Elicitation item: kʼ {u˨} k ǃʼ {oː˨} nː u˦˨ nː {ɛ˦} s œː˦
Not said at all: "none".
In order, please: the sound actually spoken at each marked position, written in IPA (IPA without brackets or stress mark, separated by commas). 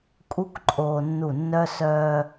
u˦, oː˨, œ˦